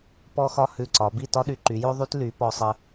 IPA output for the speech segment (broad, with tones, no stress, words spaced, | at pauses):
pɔ˥xɒ˥ hʉ˧˩ǀɒ˩˧bi˥˧ tɒ˥ ɗy˧ǃy˩˧jo˥ ðˤy˥tly˩˧ pɔ˧sˤə˧